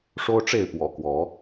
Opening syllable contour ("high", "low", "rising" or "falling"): high